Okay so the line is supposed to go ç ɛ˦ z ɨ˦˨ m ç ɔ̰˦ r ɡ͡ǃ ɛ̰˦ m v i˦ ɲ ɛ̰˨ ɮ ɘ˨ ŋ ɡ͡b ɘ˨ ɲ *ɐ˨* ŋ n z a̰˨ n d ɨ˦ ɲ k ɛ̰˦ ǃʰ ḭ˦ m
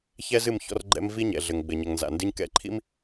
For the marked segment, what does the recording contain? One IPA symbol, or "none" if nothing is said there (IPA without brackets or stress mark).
ɐ˨